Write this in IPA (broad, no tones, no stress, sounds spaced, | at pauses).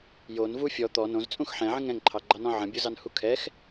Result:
j o n v u fʲ ɔ t̪ ɔ n õ z t͡sʼ ũ x ħ ɛ̃ ʕ ə̃ ŋ ɛ̃ ŋ ǃʰ ɑ ɡ͡ǃ ɑ n ɔ̃ ʕ ə̃ bʲ o z ɑ n h u kʰ ɛ x